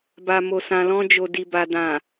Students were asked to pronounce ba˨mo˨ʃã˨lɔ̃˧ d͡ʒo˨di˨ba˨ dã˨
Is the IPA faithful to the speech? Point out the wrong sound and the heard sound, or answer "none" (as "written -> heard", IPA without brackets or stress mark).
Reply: ʃ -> s